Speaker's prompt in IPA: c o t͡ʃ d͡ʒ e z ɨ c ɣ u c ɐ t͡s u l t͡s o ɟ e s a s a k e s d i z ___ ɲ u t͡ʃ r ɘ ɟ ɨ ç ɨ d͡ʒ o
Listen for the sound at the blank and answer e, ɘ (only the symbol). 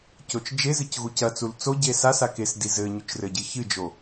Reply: ɘ